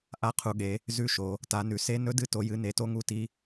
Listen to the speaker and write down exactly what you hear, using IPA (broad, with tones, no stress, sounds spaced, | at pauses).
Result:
ʔ a˦˥ qʰ u˨˦ ɠ e˨˦ | z ʉ˦˥ ʃ o˨˦ | t a˨˦ n ʉ˨˦ s e˦˥ n ɵ˦˥ d ɨ˦˥ t o˨˦ j ɨ˨˦ n e˨˦ t o˦˥ ŋ u˦˥ t i˦˥